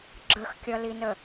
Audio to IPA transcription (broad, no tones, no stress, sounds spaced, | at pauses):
ɡ͡ǁ ə x kʲ ʌ l i n ə